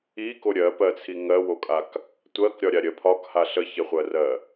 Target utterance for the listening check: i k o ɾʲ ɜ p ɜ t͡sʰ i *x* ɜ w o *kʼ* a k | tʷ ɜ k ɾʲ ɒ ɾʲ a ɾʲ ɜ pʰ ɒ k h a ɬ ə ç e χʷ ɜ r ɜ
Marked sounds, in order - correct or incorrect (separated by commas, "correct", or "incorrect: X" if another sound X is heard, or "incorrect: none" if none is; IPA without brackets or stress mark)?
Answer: incorrect: ŋ, correct